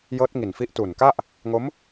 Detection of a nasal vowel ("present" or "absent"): absent